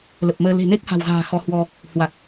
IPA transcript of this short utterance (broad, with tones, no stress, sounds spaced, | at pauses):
l ə˨˩ p̚ m əː˧ l e̤˨˩ n e˦˥ k̚ h a̤˨˩ w ɣ a̤ː˨˩ x ɔ˨˦ h w ɔ˧ | h w a˨˩ k̚